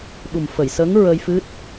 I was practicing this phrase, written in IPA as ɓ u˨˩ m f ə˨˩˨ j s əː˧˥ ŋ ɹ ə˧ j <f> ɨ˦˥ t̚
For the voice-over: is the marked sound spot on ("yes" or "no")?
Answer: yes